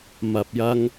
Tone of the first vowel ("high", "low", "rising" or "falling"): low